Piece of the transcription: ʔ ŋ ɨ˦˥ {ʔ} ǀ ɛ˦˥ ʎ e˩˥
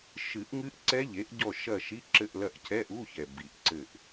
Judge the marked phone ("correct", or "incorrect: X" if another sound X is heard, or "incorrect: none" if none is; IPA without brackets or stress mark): correct